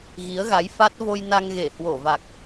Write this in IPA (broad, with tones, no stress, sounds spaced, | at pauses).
ɣ i˨˦ ə̯ ɣ a˨˦ j f a˦˥ t̚ v o˧ j n a˧ ŋ ɣ e˧˩ h w o˧˩ v a˨˩ k̚